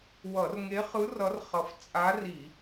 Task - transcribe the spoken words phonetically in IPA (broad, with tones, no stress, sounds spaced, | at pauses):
w ʌ˧˩˧ r ŋ e˧˥ χ ɯ˧˥ r ʌ˧˥ r χ ʌ˧˩ f t͡sʼ a˧˥ r i˧˩˧